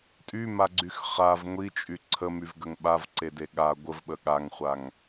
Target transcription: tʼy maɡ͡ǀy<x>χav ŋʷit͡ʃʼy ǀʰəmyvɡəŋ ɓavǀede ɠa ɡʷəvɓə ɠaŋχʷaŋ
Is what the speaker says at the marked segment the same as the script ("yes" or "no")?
yes